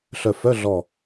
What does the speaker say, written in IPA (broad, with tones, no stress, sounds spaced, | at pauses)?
ɬ œ˧˩ f œ˧˥˧ ɮ ɔ˧˩